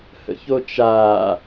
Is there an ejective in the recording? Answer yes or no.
no